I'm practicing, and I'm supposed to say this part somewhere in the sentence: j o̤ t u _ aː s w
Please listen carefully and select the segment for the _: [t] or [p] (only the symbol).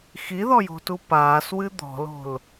p